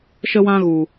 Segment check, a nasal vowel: present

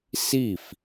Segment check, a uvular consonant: absent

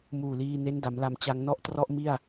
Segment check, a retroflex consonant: absent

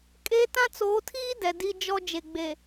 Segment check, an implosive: absent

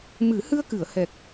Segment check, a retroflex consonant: absent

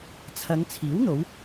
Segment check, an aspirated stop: present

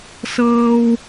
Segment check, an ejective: absent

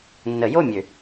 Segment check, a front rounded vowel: present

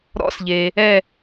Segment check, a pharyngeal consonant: absent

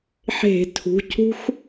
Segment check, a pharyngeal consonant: present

